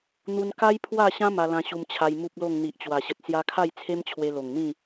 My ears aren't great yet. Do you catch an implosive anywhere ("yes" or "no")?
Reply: no